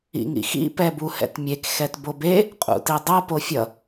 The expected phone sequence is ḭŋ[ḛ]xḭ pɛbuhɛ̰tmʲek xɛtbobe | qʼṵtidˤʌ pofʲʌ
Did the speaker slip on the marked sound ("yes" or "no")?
yes